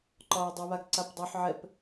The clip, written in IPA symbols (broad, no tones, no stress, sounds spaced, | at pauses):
ǃ ɒː j dˤ ɨ β a ɡ ǀ a p dˤ o ħ ʕ ɛ p